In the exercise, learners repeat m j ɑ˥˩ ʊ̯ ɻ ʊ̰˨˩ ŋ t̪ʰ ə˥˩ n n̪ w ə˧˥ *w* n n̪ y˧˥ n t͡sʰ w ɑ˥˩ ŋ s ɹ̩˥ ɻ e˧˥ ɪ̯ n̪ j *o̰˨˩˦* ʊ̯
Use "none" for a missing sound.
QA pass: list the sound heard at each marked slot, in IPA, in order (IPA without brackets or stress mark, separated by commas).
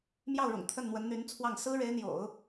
none, o̰˨˩˦